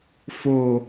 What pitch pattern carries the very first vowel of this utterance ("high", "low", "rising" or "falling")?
low